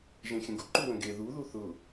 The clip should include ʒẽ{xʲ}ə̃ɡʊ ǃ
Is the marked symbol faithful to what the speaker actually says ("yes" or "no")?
yes